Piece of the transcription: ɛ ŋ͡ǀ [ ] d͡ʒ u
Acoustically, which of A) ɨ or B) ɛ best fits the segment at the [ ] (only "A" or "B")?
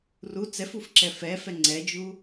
B